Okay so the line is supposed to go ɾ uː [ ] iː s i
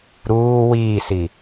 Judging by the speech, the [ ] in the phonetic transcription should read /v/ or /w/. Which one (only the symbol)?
w